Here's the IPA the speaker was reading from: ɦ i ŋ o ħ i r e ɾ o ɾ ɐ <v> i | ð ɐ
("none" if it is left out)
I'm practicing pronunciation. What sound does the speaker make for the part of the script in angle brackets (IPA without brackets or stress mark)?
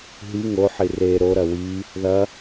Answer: w